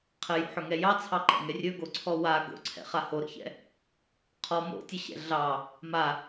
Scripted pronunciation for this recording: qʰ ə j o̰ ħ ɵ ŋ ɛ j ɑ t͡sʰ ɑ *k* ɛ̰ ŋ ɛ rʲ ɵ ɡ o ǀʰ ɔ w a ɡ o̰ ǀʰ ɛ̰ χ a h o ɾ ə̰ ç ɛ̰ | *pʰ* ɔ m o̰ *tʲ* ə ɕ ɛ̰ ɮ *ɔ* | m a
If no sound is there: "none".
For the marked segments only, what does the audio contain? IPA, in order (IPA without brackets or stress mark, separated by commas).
ǃ, qʰ, tʲ, ɑ